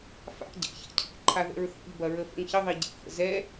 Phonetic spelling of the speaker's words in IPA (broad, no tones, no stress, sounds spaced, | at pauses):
f a̰ ɟ ɛ̰ ç a̰ cʰ ḭ ʔ ǃʰ a ð ɛ̰ ɹ θ ḭ ʎ b ɐ ɹ ə f ə̰ ŋ ç ə ðˤ i ɟ ḭ f ə̰ z ɛ